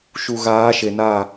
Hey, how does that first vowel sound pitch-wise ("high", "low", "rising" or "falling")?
low